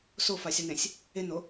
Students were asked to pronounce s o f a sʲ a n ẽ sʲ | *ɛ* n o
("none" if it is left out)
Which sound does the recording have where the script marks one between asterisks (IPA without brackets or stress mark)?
e